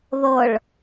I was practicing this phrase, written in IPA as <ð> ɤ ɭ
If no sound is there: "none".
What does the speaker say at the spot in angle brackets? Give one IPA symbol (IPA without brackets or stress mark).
ð